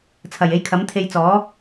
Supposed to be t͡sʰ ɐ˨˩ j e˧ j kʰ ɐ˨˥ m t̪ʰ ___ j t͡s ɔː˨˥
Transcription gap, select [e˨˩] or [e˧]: e˧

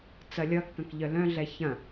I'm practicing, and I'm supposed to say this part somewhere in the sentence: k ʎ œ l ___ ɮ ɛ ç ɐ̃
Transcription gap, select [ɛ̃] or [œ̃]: œ̃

